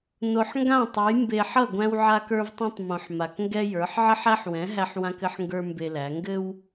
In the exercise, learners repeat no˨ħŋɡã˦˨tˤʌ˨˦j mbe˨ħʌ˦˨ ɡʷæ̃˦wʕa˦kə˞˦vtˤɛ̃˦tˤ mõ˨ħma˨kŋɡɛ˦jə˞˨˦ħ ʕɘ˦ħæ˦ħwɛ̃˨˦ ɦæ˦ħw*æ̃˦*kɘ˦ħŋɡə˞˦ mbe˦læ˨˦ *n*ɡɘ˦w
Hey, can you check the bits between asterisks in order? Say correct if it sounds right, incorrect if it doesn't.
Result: incorrect: ã˦, incorrect: ŋ

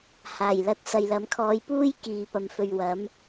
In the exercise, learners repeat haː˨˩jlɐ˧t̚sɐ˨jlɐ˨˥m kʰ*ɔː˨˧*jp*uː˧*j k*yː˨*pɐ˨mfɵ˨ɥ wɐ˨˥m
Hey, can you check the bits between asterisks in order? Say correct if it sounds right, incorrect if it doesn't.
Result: correct, incorrect: uː˥, incorrect: iː˨

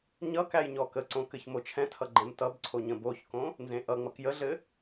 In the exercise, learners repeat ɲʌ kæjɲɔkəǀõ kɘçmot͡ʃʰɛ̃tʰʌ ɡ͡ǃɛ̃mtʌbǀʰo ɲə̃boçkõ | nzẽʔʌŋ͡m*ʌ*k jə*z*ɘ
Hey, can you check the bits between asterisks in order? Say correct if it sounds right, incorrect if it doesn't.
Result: correct, incorrect: ɮ

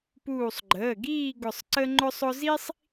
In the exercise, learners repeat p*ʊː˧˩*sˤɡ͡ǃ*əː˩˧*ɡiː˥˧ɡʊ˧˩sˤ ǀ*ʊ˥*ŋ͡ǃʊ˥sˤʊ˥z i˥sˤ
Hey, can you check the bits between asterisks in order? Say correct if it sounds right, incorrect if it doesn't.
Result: incorrect: uː˧˩, incorrect: əː˩˧˩, incorrect: ə˥

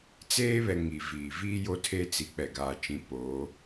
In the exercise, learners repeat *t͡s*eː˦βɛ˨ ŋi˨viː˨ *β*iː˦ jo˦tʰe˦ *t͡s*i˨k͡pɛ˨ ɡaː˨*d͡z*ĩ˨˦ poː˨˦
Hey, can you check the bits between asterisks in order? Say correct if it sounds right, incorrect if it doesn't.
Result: correct, incorrect: v, correct, incorrect: t͡ʃ

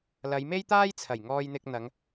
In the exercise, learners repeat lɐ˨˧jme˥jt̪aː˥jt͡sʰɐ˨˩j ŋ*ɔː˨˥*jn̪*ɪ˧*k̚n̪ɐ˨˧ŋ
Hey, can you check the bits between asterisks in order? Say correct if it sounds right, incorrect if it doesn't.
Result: incorrect: ɔː˧, correct

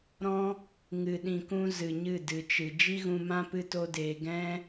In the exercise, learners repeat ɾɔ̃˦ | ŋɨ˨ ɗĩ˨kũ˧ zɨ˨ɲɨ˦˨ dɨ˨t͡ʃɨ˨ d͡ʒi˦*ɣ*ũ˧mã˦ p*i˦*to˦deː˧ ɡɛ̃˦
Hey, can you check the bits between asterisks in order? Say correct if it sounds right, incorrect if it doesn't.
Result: correct, incorrect: ɨ˦

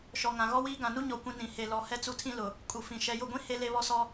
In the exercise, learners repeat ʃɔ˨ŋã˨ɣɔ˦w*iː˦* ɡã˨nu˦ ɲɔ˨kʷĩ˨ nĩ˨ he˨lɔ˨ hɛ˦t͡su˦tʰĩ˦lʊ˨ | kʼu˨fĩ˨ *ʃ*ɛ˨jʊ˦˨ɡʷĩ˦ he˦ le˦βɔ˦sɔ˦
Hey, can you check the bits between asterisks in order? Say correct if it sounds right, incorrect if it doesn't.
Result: correct, correct

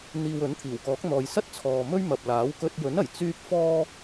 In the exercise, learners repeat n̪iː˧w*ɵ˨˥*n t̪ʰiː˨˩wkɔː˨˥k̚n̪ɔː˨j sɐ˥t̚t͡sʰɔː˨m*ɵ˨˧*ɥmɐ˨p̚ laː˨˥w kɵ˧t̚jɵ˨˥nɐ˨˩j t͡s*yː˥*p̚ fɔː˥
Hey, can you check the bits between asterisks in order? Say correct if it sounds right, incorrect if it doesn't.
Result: correct, incorrect: ɵ˥, correct

